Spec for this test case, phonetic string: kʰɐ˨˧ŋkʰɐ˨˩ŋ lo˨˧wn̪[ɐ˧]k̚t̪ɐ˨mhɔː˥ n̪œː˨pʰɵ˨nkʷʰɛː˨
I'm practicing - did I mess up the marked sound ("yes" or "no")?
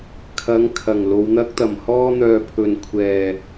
yes